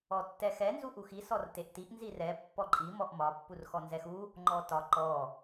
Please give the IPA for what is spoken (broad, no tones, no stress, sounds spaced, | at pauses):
ɔ tː ɛ x ɛ n z u ʔ u x i s ɔ r t e ʔ t i ʔ n z i r ɛ pː ɔ ǃʼ i m ɔ ʔ m ɒ pː u r x ɔ n z ɛ x u | ŋ͡ǃ ɔ t ɒ ǃ ɔ